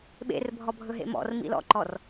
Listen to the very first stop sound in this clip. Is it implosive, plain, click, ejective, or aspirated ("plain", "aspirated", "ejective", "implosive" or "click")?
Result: implosive